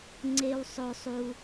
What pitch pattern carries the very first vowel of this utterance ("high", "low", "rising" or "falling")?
high